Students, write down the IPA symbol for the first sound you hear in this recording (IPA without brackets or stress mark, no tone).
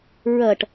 ɹ